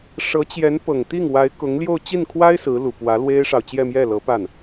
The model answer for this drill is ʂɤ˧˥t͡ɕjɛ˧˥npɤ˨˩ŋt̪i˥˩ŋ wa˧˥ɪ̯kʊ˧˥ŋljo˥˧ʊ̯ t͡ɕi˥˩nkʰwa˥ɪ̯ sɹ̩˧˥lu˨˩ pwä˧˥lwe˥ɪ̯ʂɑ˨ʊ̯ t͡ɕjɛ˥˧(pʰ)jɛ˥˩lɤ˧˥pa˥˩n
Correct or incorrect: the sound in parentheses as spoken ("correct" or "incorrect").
incorrect